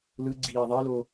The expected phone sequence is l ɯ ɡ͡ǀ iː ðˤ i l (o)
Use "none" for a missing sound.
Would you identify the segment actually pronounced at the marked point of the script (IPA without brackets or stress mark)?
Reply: o